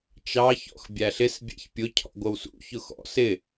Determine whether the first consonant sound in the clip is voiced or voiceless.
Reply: voiceless